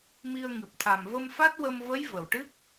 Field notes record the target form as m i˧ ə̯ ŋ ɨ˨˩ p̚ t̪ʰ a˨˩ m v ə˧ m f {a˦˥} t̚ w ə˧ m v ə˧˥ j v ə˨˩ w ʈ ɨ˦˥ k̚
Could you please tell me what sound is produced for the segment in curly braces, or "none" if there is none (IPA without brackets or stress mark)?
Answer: a˦˥